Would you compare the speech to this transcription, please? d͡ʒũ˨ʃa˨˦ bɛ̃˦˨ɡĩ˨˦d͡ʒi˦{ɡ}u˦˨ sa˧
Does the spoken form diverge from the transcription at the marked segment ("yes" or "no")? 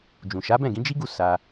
no